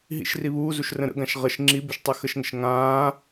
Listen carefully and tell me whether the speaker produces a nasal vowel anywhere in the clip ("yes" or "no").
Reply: yes